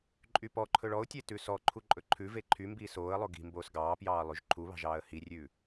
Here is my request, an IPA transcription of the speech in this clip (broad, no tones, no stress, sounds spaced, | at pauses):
ǃʼ y p ɔ ǃʰ ɵ ɭ ɔ ʊ̯ tʲ e t ʉ s ɔ ǃʰ u ǃʼ ɵ ǃʰ ʉ v e ǃʰ y m b iː s oː ə̯ lˠ o ɡ i̤ m b oː s ɡ ɑː p j ɑː lˠ ʉ ʒ ǃʰ u β ɑ̤ ʒ ɑː ə̯ h i rʲ ʉː